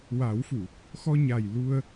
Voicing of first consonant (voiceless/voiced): voiced